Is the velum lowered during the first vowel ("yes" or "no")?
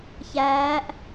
no